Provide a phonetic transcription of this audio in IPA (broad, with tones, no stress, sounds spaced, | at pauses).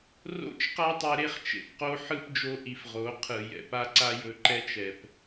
r o̰˦˨ t͡ʃ q a˦ tˤ e˧ ɾ e˦ χ t͡ʃ ḛ˨ p q o˦ ħ ɯ˦ p d͡ʒ o˧ ʔ i˨ f ʁ o˨˦ qʰ ɯ˨ j ɛ̰˨ p a˦ ǀ a˦ j ɵ˧ ǃ ɛ˦ t͡ʃ ɛ˨ p